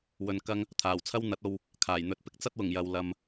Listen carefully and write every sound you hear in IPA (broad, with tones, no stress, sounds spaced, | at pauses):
w ɵ˧ n k ɐ˥ ŋ | t̪ʰ aː˨˩ w t͡sʰ ɐ˥ w n̪ ɐ˨˥ t̚ o˧ w | kʰ aː˨˩ j n̪ ɵ˧ t̚ p ɪ˥ k̚ t͡s ɐ˥ t̚ w ʊ˨˩ ŋ j ɐ˨ w l ɐ˧ m